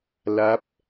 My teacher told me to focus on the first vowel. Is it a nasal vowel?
no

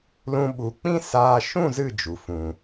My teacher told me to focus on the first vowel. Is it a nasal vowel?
yes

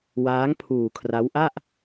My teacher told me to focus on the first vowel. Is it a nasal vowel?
no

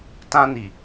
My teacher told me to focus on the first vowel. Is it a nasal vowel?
yes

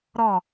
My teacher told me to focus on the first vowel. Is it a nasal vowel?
no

